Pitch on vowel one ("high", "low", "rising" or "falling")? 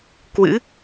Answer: rising